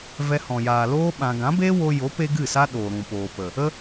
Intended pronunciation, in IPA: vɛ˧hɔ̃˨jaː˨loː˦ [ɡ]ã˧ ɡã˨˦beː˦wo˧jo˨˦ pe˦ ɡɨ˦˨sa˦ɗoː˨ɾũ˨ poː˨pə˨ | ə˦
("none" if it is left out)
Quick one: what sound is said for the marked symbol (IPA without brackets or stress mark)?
ɓ